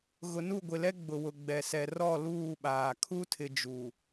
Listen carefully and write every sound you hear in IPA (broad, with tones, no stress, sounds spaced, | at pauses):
ɣ ʊ˨ n u˦˨ ɡʷ ɪ˨ l ɛ˦ ɡ͡b ʊ˨ w ʊ˨ ɡ͡b ɛ˨ s ɛ˨ r ɔ˦˨ l uː˦˨ ɓ aː˨ kʰ u˦ tʰ ɪ˨ d͡ʒ u˨